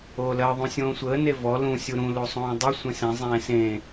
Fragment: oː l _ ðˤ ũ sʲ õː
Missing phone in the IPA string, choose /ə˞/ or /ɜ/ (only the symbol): ɜ